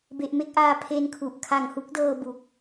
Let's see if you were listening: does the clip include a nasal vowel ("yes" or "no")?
no